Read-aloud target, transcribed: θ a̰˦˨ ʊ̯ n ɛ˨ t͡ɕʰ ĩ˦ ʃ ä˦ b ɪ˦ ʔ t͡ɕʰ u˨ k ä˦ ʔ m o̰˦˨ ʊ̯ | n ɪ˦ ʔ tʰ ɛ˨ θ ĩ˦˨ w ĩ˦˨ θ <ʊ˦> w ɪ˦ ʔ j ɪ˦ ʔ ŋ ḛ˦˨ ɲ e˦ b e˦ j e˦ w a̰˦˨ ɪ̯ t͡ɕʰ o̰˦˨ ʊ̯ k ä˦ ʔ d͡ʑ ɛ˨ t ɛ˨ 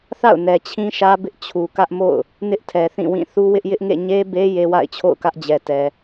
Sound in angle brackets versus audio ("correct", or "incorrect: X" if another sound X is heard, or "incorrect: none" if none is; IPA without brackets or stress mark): incorrect: u˦